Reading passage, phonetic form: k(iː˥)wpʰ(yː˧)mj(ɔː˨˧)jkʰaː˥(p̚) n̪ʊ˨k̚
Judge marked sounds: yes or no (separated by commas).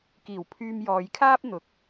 no, yes, yes, yes